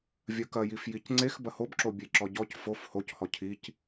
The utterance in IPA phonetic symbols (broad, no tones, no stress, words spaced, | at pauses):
vʲɐkɐjif jicŋ͡ǀex bɐhobǁo bʲeǁɔɟɔc fof hochɔ cʰic